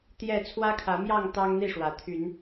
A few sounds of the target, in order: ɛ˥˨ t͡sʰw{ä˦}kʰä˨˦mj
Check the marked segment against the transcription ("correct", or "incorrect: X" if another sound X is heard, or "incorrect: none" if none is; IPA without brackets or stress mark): correct